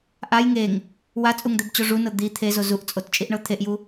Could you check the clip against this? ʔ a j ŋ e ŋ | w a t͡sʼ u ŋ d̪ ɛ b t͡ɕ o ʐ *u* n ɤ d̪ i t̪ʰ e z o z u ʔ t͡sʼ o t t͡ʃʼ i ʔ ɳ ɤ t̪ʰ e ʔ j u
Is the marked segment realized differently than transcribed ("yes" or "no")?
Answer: no